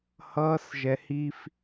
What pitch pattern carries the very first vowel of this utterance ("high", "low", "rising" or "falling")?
high